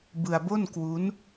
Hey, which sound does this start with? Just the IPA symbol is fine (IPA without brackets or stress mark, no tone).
b